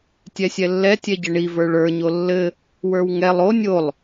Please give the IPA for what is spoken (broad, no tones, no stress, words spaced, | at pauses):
tʲɛsʲɛlːɛ tʲɛɟɘɳi və˞ɭə˞ ɲolːɘ | wə˞wŋɛlˠ o nʲolˠ